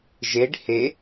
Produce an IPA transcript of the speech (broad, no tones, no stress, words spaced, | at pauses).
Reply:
ʒeɖ he